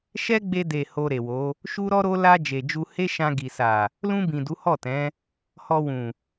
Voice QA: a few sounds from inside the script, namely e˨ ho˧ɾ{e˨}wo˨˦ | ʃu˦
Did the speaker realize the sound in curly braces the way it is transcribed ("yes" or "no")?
yes